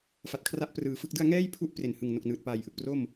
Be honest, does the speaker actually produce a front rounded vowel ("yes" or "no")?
no